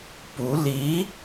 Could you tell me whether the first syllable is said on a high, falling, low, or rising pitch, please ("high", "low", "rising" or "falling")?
rising